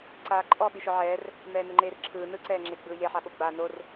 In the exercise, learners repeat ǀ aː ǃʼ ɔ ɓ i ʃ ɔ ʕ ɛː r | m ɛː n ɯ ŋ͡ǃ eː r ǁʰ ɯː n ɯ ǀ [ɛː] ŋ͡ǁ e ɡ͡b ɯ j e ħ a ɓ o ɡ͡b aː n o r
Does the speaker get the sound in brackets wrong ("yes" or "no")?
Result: no